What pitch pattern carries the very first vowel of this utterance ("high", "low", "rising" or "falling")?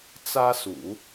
high